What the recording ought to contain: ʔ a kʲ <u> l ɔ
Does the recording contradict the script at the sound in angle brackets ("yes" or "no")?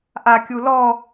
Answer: no